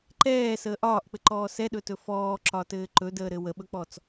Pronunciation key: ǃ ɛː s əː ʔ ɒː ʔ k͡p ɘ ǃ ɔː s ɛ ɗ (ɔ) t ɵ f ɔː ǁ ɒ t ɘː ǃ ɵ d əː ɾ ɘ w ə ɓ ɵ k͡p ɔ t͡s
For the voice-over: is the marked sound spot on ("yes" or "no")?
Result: no